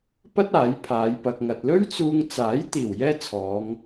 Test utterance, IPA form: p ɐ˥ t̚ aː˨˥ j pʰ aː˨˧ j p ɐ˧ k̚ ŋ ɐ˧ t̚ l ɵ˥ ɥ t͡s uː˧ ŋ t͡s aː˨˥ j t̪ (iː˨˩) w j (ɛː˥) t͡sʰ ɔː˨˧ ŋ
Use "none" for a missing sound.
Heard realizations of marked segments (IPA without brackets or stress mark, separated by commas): iː˨˩, ɛː˥